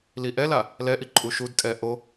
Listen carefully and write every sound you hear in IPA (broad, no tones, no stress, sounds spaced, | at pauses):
l i ʔ ɛ l a | l ɛ ʔ i ǃʼ u ʃ u d tʼ ɛ ʔ o